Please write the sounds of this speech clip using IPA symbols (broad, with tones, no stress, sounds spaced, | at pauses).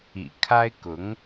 ḭ˨˩ kʰ a˥ ɪ̯ k ʊ˧˥ ŋ